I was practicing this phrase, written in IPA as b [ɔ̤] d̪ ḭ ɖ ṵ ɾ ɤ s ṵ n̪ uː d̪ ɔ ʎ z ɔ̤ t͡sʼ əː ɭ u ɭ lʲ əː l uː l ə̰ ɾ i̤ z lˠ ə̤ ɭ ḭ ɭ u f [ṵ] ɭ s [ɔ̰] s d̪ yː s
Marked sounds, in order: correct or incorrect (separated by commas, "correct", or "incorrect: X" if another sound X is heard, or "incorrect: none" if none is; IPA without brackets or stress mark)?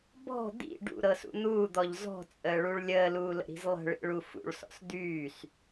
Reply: correct, correct, correct